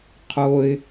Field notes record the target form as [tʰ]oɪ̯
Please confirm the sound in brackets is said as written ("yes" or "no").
no